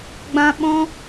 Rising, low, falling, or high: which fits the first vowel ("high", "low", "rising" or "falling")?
high